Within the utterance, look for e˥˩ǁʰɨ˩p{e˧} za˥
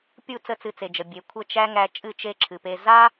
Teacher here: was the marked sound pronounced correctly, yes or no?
yes